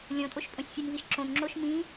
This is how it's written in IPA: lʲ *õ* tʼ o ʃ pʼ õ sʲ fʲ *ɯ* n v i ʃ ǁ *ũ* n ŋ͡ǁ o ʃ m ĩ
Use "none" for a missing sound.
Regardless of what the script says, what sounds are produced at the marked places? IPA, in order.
õ, ɯ, õ

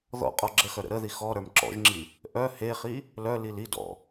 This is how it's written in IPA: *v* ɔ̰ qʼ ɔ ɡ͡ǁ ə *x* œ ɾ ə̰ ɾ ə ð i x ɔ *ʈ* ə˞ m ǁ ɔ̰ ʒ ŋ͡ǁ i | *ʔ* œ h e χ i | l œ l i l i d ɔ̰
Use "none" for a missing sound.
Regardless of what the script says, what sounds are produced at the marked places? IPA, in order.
ð, x, ɾ, ʔ

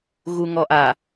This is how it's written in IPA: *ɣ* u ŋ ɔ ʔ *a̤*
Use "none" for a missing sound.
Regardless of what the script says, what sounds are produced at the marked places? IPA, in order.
ɣ, a

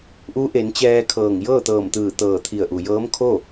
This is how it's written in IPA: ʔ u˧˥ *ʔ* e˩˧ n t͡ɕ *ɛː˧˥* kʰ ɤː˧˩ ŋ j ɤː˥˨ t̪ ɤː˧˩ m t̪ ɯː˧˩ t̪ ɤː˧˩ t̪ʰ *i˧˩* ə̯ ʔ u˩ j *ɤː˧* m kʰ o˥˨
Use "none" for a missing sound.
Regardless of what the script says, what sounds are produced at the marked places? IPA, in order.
ʔ, ɛː˧, i˧˩, ɤː˧˥

